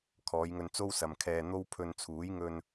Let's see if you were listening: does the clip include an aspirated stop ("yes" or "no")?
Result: yes